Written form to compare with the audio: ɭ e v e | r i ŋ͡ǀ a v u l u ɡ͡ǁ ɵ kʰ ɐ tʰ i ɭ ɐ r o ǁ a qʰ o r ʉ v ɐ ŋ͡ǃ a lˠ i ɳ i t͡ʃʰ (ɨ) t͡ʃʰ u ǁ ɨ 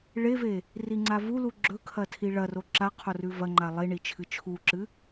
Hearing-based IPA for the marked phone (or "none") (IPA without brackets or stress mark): ɨ